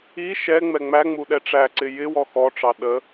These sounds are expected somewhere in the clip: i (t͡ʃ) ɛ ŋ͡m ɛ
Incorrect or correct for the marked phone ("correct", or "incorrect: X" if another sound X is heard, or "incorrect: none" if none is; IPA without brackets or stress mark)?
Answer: incorrect: ʃ